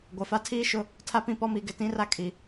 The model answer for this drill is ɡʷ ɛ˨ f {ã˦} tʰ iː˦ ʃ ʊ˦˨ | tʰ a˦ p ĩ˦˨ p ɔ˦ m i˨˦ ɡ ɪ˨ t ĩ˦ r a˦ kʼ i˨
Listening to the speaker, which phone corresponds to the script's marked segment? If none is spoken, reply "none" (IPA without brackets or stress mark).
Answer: a˦